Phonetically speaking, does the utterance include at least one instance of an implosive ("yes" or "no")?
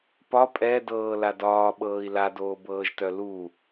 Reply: yes